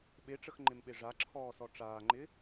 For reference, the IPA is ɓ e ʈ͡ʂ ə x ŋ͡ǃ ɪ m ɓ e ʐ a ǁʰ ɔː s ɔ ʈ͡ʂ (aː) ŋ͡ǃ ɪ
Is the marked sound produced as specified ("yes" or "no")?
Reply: yes